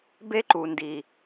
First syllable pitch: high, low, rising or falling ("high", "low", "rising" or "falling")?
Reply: high